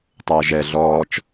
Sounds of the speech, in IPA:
tˤ əː ʒ ɛ ɮ ɔː t͡ʃ

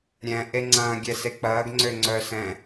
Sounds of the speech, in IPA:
ɾʲ ɛ̃ ʔ e ŋ͡ǀ ɐ̃ː ɡʲ ɛ s e k͡p ɐː ɡ ŋ͡ǀ ø ŋ͡ǀ œː s ɛ̃

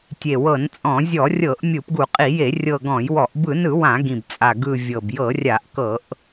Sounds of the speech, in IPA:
tʲ e˨˩ w ɤ˧˩˧ n t͡sʼ ɔ̃˧˩˧ zʲ ɔ˧˩˧ rʲ ɤ˧˩˧ ʔ mʲ ɯ˧˩˧ p ɡ u˧˩˧ qʼ i˧˩˧ j e˧˩˧ rʲ ɤ˨˩ ɡ ɔ̃˧˩˧ j w ɔ˧˩˧ ʔ b ɯ˧˩˧ n ɯ˧˩˧ w ã˧˩˧ ɡ ĩ˨˩ b t͡sʼ a˨˩ ɡ ɯ˨˩ vʲ ɤ˨˩ b j ɤ˧˩˧ rʲ a˧˩˧ ʔ k ɤ˧˩˧ ʔ

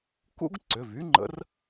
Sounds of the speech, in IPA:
k ṵ˥ ɡ ǀ ʏ˩˧˩ v y˥ ŋ͡ǃ ə̰˧˥ r

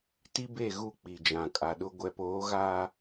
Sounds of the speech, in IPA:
t i˦ b e˦˨ ɣ u˦˨ k͡p i˨ d͡ʒ ã˨ kʼ a˨ ɗ ʊ˦ ɡʷ ɛ˨ p oː˨˦ ɣ aː˦

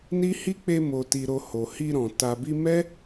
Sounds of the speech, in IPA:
n i˦ h i˦ k͡p e˧ m o˨ t i˨ ɾ o˨ h o˨ h i˧ ɾ ɔ̃˨ t a˨ b i˧ m ɛ˦

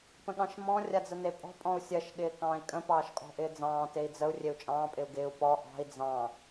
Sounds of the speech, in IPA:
p ə̃ ɠ ɑ̃ ʃ m ɔ̃ rʲ a d͡z ə n e pʼ ɔ̤ pʼ ɔ̃ u̯ sʲ ɜ ʃ ɠ ɪː k ɑ̃ː i̯ kʼ ə̃ p ɑː ʃ kʼ ɔ̤ ʔ ɪː d͡z ɑ̃ː t e i̯ d͡z ə u̯ rʲ e u̯ t͡ʃʼ ɑ̃ː pʼ ɪ u̯ ɡ ɪː u̯ p ɔ ʔ ɑ̤ i̯ d͡z ɑ̃

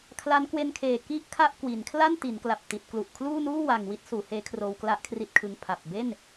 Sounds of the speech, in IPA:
kʰ l a˦˥ n k w e˧ n kʰ eː˨˩ k i˥˩ ʔ kʰ a˥˩ ʔ k w i˩˦ n kʰ l a˥˩ n t i˩˦ n k l a˨˩ p̚ t i˨˩ t̚ k l u˨˩ ʔ kʰ l uː˥˩ n uː˥˩ w a˨˩ ŋ w i˦˥ t̚ s uː˩˦ h eː˦˥ kʰ r oː˧ w k l a˦˥ ʔ kʰ r i˦˥ t̚ kʰ ɯ˧ ŋ pʰ a˨˩ p̚ b e˥˩ n

